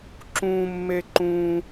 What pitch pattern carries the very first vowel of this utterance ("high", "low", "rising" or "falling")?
high